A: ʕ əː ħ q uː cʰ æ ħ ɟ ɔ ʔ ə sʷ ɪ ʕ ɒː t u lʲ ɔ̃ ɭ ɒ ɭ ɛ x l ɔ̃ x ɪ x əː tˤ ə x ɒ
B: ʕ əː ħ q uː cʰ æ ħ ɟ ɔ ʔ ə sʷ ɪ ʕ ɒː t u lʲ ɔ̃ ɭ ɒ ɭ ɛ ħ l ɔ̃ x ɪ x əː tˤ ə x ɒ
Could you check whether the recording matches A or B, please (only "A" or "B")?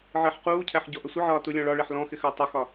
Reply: B